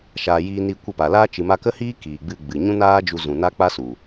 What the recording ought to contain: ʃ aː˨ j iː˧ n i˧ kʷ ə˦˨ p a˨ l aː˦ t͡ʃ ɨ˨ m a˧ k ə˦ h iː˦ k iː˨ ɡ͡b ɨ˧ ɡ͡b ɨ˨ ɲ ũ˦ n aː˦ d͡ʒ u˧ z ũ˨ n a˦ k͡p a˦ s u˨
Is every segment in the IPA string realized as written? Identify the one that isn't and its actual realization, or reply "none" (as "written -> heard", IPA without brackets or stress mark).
none